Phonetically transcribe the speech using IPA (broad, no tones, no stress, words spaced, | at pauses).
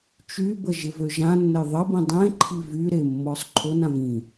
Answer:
t͡ʃybə ʒɪvøʒãnːəj ðˤəbĩ dˤẽ ǃʰivyɾe mːɔsˤǃʰonãv ĩ